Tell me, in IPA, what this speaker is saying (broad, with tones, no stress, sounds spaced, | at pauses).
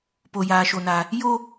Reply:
p o˦ j aː˦ ʃ o˦ n a˦ | j o˦